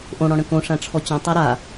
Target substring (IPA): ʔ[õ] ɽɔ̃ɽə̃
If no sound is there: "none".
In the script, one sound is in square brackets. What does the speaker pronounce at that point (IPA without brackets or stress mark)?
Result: õ